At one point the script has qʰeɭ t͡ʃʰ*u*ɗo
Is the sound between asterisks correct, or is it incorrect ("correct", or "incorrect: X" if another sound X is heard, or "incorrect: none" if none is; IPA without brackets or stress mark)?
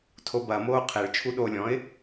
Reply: correct